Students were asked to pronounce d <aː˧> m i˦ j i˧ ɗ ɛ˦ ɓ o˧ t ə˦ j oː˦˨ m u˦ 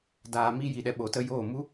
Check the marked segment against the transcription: correct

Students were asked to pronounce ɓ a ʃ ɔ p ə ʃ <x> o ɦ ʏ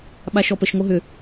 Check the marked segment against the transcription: incorrect: ŋ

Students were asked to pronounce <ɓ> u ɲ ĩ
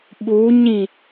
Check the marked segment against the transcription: correct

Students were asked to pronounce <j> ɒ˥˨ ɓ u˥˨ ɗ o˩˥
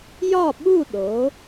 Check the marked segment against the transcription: correct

